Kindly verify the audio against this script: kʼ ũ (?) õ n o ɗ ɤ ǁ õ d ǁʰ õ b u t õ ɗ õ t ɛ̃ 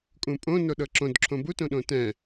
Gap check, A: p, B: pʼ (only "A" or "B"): B